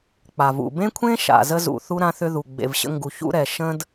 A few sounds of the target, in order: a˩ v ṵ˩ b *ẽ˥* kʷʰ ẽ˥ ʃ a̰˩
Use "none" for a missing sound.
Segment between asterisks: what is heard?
ẽ˥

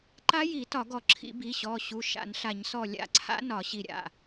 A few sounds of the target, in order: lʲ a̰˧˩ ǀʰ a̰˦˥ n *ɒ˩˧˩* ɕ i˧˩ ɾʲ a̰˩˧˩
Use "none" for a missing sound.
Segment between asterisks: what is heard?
ɒ˧˩˧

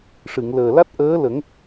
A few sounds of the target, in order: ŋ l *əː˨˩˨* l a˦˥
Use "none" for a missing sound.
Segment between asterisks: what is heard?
əː˨˩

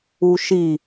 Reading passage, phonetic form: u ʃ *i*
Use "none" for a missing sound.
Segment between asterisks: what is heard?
i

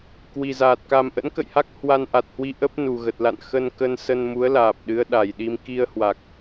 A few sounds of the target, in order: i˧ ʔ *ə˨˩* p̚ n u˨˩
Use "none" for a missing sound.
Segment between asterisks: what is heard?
ə˦˥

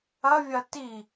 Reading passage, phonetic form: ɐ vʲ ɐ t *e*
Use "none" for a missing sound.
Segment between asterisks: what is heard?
i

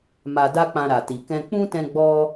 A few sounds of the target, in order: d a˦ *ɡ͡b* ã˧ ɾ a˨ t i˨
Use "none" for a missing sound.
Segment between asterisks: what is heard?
k͡p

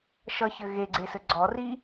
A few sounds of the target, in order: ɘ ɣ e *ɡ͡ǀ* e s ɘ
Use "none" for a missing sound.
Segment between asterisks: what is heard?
ɡ͡ǀ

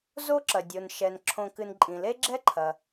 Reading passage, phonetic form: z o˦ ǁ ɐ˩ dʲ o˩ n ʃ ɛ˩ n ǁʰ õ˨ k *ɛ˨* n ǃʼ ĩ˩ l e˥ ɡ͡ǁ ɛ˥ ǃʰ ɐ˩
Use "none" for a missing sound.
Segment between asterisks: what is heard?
ɨ˨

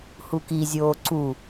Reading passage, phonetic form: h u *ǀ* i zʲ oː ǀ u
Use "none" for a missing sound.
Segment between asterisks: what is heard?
k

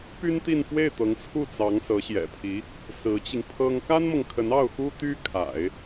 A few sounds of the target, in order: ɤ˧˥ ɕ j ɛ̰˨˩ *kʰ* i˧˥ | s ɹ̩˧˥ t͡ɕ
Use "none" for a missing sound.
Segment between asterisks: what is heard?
pʰ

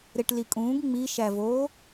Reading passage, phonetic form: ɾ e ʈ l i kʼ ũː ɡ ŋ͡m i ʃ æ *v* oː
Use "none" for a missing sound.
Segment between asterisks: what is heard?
v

